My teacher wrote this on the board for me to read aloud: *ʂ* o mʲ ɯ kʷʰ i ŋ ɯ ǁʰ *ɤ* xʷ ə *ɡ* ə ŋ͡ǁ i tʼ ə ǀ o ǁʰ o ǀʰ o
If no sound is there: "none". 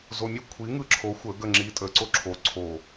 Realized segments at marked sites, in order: z, o, ɡ

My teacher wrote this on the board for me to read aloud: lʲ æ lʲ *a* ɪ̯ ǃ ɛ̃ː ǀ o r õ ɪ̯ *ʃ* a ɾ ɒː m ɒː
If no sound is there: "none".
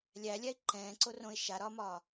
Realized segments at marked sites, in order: æ, ʃ

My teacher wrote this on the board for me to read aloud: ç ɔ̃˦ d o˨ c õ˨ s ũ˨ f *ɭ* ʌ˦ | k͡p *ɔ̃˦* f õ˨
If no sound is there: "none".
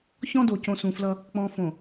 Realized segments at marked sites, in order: l, ɔ̃˨

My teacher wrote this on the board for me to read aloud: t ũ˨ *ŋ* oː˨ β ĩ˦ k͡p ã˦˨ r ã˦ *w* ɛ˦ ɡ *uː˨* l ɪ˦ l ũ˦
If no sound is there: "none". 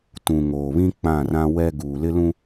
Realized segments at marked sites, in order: ŋ, w, uː˨

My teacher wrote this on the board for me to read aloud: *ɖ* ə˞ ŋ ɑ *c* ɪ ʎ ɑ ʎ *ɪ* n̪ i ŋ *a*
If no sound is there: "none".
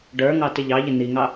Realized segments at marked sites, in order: ɖ, t, ɪ, ɑ

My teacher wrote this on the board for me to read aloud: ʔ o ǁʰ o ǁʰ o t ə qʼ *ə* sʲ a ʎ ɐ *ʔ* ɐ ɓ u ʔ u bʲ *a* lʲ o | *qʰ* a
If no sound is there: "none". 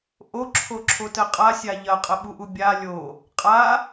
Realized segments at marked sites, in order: a, qʼ, a, qʼ

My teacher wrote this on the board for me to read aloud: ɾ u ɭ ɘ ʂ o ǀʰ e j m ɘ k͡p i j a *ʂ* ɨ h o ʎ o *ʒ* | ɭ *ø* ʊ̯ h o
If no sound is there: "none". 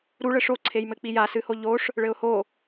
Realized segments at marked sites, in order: s, ʂ, ɘ

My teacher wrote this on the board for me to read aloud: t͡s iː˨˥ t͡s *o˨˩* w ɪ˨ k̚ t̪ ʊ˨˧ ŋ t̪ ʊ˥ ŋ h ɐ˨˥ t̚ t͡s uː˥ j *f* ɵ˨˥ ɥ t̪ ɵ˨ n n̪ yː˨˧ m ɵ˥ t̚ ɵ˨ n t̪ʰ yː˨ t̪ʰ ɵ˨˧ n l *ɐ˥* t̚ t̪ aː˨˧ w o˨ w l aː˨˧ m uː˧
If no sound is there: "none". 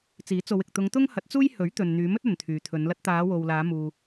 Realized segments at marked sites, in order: o˨˧, h, ɐ˥

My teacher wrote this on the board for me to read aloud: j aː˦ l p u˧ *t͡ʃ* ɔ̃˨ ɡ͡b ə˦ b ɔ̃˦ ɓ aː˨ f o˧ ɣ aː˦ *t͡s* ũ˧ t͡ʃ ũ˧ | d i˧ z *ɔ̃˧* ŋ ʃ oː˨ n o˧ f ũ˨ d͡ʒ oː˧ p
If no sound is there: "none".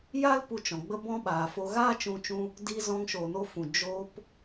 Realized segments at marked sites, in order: t͡ʃ, t͡ʃ, ɔ̃˧

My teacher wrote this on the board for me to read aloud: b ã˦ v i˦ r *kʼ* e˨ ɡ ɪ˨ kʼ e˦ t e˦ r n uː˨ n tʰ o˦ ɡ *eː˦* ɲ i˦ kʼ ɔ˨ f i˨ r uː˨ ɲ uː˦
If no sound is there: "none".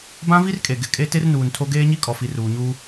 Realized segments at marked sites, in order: kʼ, eː˦

